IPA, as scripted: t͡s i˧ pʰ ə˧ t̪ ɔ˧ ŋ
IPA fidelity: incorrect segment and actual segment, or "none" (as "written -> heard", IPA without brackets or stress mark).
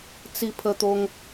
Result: ɔ˧ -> o˧